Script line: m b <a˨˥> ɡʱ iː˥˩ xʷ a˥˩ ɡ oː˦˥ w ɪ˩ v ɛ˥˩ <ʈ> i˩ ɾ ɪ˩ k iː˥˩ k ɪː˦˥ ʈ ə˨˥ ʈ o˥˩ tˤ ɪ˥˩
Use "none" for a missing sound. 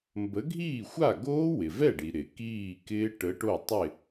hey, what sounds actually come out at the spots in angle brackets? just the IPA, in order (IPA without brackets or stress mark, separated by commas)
ə˨˥, ɖ